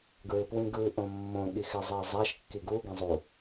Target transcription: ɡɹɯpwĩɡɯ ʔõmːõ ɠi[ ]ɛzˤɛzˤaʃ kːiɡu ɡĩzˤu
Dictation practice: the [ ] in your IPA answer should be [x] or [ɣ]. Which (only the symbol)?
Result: x